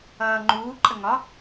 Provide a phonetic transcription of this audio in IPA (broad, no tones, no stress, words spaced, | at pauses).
ʌːŋ͡ǃuː ǃʼəŋɒ